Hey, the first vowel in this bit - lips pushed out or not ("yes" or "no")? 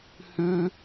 yes